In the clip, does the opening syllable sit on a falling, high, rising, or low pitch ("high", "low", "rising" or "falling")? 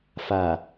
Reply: low